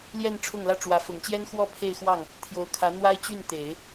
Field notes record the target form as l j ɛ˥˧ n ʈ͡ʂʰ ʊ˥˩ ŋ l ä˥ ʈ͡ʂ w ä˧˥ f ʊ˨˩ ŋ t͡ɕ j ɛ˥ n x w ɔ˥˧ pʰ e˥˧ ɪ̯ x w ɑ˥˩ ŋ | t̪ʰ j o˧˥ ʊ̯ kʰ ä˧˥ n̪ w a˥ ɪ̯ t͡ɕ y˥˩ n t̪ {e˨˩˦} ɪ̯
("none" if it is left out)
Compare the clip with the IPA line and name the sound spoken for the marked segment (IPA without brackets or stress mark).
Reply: e˨˩˦